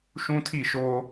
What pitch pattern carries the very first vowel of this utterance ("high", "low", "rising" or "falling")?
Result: high